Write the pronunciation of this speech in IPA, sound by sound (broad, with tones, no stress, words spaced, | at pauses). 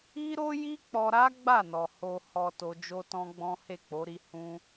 i˦ɾo˦ ji˦k͡pɔ˧ɾa˦ ɡ͡ba˦˨nɔ˨ ho˨ hɔ˨ to˧d͡ʒo˦tɔ̃˦ɡ͡bɔ̃˦ he˦˨k͡po˨˦ɾi˧ hũ˧